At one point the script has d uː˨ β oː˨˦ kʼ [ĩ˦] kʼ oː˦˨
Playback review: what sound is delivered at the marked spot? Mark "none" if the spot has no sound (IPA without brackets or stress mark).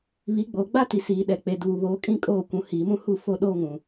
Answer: ĩ˦